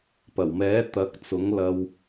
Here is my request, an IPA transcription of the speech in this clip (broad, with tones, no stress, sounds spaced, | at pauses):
p ɐ˨˩ w m ɛː˨˥ t̪ ɐ˨˥ k̚ t͡s ʊ˨˥ ŋ l ɐ˧ w